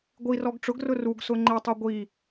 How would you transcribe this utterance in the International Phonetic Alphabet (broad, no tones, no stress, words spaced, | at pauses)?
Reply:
ɡʷirɔɡ ʈ͡ʂʊɡrʊ ruɡsʊ ŋ͡ǃetˤo ɡʷi